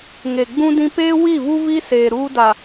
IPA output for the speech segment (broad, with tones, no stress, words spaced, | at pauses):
ŋe˨ ɡ͡bũ˦dĩ˦ peː˦ wi˦˨vu˦vi˦seː˨ ɾuː˦da˨